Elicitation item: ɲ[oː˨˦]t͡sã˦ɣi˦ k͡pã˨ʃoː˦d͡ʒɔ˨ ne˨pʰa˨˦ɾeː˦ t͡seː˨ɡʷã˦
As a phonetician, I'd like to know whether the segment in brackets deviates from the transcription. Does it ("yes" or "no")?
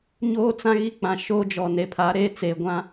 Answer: yes